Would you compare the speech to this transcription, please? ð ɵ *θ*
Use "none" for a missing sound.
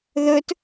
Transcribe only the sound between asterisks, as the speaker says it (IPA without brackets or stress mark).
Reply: t